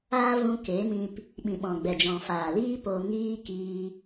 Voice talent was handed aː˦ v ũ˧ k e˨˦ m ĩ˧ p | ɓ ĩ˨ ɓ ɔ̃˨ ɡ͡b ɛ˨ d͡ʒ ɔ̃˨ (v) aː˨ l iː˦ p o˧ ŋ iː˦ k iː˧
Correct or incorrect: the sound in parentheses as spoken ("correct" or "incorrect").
incorrect